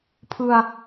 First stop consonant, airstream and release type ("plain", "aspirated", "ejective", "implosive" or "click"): aspirated